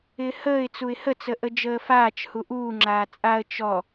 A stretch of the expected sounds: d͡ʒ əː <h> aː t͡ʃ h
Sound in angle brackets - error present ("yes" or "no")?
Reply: yes